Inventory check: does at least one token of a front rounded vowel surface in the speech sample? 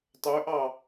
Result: yes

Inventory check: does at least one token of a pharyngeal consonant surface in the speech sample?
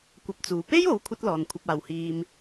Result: no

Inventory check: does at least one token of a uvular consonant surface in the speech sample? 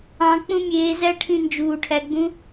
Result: no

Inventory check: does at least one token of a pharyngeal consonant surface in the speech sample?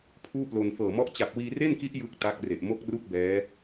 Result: no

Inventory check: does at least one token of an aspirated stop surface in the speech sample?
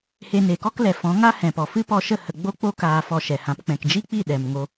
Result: no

